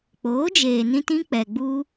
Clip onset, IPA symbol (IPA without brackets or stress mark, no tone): k͡p